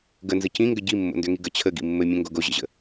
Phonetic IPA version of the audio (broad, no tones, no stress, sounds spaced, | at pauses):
ɡ ə n z ə c ĩ ŋ ɡ ə ɟ i mː o̰ n d ø ŋ i ɡ ə t͡ɕʰ ə ɡ ḭ mː ɘ mʲ ɛ̃ ŋ ɡ o ɡ o ʑ ə̰ ʑ ə̰